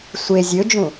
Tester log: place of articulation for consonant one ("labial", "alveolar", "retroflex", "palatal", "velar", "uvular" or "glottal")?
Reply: alveolar